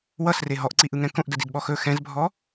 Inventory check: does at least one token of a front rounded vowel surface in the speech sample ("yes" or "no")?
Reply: no